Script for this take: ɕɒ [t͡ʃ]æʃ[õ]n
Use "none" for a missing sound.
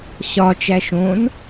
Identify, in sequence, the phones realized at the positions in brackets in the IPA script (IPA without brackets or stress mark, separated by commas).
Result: t͡ʃ, õ